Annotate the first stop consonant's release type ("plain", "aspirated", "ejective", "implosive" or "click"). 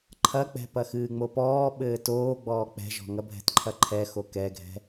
click